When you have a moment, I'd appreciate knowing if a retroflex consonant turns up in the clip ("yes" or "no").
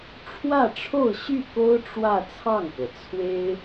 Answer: yes